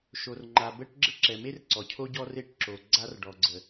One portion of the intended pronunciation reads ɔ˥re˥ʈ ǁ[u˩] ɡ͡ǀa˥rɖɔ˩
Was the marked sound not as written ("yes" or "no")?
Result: yes